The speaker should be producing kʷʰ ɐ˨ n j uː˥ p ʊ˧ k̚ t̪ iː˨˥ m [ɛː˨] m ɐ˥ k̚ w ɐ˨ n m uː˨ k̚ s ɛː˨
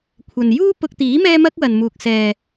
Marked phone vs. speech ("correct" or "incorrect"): incorrect